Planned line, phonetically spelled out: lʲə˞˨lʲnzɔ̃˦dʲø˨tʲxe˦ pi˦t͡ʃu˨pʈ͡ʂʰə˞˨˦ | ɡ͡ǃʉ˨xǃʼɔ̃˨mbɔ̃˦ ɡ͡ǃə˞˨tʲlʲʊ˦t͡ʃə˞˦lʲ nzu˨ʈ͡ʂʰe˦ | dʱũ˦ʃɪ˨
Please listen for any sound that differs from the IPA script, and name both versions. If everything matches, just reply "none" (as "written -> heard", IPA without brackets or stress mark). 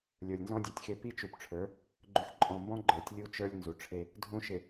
ʊ˦ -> u˦